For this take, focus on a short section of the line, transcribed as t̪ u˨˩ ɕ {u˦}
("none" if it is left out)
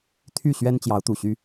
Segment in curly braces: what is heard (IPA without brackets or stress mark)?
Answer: y˦